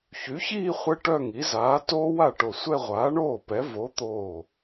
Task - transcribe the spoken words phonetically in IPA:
ç y˨˥ ç iː˥˧ χʷ ɛ˥ ʈ œ˥˧ ŋ i˨˥ z aː˨˥ t oː˥ w a˥˩ ʈ o˧˩ sʷ ɛ˥˧ ʁʷ aː˨˥ ɳ oː˥˩ p ɛ˨˥ v o˨˥ t̪ oː˧˩

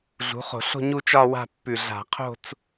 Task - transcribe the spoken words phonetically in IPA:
ɮ ṳ˩˥ χ o̤˧˩˧ ɬ o̤˥˧ ɲ u˥˧ t͡ʃ ɒ˥˧ w a̤˥˧ pː ʉ˧˩ ɮ a̤˧˩˧ qʰ o̤˥˧ t͡s

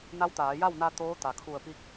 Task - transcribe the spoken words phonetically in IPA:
n a˧˥ w t̪ aː˩˧ j a˥˨ w n a˧ t̪ oː˧˥ t̪ a˩ kʰ u˧˩ ə̯ p i˧˥ k̚

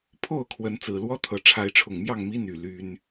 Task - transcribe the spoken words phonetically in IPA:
pʰ o˥˨ ʊ̯ kʰ w ə˨˦ n t͡s ɹ̩˨˩ l w ɔ˦ t̪ʰ ɤ˨˦ ʈ͡ʂʰ a˨˦ ɪ̯ ʈ͡ʂʰ ʊ˨˩ ŋ m j ɑ˥˨ ŋ m i˦ n̪ y˨˩ l y˦ n

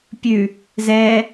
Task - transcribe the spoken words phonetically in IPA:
pʲ ʉ | z ɛ

